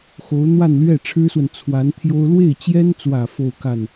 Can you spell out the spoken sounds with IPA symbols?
xo˧˥ʊ̯ n̪wa˥˧nlɥɛ˥˩ ʈ͡ʂʰɻ̩˥swə˨n t͡sʰwa˧˥n t̪ʰjo˥ʊ̯ lwe˥˩ɪ̯t͡ɕjɛ˥nt͡swä˨˩ fo˥˧ʊ̯ka˥˩n

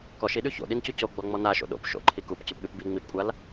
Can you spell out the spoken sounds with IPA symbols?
kɔʃiɗʉ ço̰ɗincu coɡ͡bɔŋ͡mɔ naʃo̰ ɗo̰p ʃo̰ǃʰi kupcʉpɠʉp bi ŋ͡mipkʷʼal

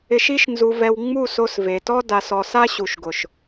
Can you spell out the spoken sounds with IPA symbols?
ɪ˨ʃi˧ʃnzu˨vɛ˨w ŋ͡mu˦˨so˧sve˨tɔ˦ da˨sɔ˨s a˦ɕu˨ʃɡʊ˨ʃ

